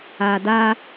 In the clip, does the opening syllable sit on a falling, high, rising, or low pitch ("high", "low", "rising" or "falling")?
low